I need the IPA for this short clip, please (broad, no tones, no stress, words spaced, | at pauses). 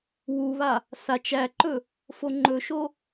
wuβa | sat͡ʃ æǃɵ | foŋ͡ǃɵʃo